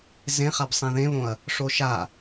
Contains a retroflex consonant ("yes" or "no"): yes